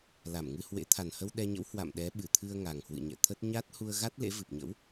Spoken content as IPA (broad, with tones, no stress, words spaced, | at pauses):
la˧˩mŋɨ˧hwḛ˧˥ t̪ʰa˨˩nhə˧w ɗɛ˧ɲə̰˧˥w hwa̰˧˨m ɗɛ˨˦ɓɨ˧˩t̪ʰɨ˧ə̯ ŋa˨˩ŋhwɨ̰˧˨ɲɛ̰˧˨t̪ʰə˦˥t̚ ɲa˦˥t̚ hu˧ə̯ɣa˦˥t̚ lḛ˧˥vɨ˨˩p̚ɲə̰˧˥w